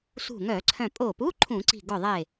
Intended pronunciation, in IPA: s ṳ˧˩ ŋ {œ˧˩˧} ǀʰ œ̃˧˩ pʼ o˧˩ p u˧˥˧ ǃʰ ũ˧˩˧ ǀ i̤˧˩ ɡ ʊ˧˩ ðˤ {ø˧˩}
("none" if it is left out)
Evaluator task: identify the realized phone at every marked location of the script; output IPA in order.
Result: œ˧˩˧, e˧˩

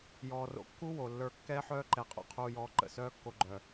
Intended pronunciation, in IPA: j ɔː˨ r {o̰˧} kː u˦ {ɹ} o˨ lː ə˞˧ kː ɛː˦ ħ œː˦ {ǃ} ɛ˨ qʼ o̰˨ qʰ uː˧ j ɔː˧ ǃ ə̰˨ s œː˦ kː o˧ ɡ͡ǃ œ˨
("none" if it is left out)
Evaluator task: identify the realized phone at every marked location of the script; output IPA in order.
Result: o̰˧, w, ǃ

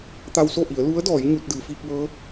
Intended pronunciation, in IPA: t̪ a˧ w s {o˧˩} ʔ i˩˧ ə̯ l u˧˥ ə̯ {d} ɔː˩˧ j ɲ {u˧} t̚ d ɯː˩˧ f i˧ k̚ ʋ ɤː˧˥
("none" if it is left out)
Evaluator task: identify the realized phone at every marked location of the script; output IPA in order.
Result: o˥˨, d, u˧

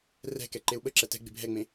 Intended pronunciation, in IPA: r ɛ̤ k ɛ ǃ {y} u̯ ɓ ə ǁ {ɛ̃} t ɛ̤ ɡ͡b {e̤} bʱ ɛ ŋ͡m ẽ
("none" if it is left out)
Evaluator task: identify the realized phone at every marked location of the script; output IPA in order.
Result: e, ɛ, e̤

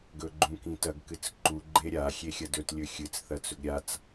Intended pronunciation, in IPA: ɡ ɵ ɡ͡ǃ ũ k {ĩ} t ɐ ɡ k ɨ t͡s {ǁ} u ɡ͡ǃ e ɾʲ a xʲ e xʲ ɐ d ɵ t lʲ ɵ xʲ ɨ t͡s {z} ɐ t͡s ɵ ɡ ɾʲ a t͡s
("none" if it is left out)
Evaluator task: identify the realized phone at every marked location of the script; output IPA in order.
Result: ĩ, ǃ, θ

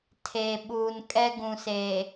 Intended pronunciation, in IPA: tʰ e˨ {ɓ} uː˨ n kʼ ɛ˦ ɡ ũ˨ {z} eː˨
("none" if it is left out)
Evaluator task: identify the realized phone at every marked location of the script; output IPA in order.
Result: ɓ, s

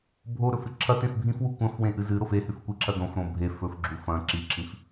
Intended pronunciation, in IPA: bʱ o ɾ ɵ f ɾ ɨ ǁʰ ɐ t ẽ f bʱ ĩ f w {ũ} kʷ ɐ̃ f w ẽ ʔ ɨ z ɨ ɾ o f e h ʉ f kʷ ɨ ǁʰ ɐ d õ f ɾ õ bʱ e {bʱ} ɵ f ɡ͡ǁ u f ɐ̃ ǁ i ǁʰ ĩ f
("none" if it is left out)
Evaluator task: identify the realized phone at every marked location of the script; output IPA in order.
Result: u, f

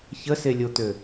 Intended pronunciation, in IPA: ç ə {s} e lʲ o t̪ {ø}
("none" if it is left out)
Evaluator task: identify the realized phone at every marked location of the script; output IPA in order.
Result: s, ø

